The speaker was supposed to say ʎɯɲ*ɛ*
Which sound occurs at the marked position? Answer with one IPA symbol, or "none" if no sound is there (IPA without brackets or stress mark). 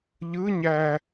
æ